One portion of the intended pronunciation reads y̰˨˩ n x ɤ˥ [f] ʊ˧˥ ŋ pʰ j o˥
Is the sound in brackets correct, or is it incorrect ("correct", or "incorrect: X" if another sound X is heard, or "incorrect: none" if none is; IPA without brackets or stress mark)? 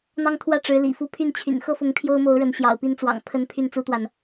correct